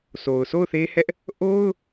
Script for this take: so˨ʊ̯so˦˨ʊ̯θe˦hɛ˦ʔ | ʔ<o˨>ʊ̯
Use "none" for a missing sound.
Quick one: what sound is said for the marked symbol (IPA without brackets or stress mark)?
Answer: o˦